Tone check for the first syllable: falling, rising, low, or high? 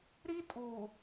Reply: high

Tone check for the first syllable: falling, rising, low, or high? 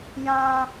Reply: high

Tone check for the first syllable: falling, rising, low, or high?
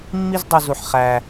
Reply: high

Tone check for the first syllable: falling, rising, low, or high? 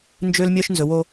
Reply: high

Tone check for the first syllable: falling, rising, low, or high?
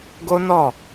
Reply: high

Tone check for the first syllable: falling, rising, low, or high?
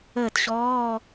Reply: falling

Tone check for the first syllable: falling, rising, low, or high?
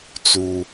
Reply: high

